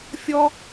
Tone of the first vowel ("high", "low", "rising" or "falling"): high